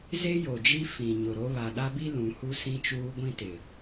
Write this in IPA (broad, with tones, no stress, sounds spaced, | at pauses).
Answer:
z e˦ j o˨ d͡ʒ i˦ f ĩ˨ ɲ ʊ˨ ɾ o˦ β a˨ ɗ a˦ b i˦ l ũ˨˦ h u˦ s ĩ˦ t͡ʃ uː˦ ɡʷ ĩ˦ t ɪ˨